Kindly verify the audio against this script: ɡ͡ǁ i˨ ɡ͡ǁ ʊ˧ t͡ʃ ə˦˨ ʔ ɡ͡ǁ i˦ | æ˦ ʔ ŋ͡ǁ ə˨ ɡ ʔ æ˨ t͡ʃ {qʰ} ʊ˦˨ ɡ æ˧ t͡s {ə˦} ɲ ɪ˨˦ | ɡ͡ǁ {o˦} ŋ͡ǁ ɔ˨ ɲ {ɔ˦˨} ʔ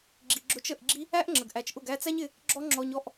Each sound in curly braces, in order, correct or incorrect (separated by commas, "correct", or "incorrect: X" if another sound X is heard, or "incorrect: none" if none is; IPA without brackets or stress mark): incorrect: ʔ, incorrect: æ˦, incorrect: ɔ˦, correct